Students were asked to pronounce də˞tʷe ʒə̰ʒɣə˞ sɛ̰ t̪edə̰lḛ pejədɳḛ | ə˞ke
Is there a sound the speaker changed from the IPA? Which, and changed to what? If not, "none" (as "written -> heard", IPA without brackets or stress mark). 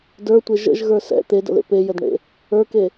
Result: none